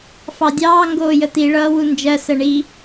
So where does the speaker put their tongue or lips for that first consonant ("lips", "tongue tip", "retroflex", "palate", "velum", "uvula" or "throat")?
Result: lips